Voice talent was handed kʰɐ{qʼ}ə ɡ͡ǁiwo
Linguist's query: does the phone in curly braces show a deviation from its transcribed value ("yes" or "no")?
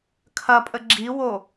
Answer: yes